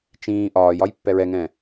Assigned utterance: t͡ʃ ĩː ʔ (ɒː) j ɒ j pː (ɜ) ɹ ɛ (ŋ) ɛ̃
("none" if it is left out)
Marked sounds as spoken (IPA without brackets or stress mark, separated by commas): ɒː, ɛ, ŋ